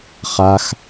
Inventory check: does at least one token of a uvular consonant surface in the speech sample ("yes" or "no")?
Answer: yes